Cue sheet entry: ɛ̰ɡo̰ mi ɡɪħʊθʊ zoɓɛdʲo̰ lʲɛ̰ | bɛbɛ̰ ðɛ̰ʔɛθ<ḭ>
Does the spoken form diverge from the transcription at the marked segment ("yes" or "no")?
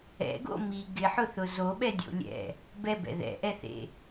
yes